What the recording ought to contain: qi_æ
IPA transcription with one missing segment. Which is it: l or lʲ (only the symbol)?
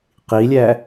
lʲ